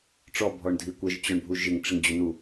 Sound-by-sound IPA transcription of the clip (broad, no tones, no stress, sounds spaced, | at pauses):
ʈ͡ʂ ɔ bʱ ɔ ɳ dʱ i kʷ ə ʒ t͡ɕ ɔ ɳ bʱ u ʒ ɪ ŋ ʈ͡ʂ ɪ ŋ d͡ʑ o n u